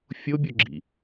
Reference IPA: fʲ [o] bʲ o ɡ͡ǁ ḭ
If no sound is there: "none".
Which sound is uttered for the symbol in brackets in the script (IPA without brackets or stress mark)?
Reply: o